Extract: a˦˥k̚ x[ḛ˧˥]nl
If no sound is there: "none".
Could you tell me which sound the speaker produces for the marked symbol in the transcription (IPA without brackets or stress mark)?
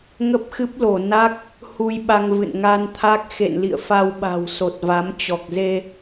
ḛ˧˨